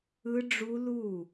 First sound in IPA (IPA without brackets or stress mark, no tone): ɯ